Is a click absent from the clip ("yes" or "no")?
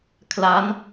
yes